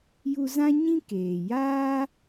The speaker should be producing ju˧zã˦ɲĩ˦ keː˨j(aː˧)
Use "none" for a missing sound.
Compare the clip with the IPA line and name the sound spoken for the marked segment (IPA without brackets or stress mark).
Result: aː˦